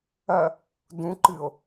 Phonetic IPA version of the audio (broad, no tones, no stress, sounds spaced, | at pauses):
ɐ | d ũ ǃ ɨ o̯